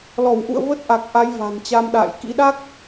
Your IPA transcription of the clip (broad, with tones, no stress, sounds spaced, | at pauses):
l ɔ˧˩ w ʔ ṵ˧˨ ə̯ v ə˦˥ t̚ ʔ a˨˩ k̚ ʔ a˨˦ j v a̤˨˩ n t͡ɕ a˧ m ɗ a̰ː˧˨ j k ḭ˧˥ ɗ a˦˥ k̚